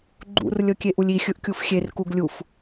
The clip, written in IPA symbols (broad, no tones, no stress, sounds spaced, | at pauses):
ɡ͡ǃ ṵ r lʲ ɤ kʲ e ʔ u lʲ i xʲ ɯ ʔ kʲ u f xʲ e r k u ɡ lʲ u f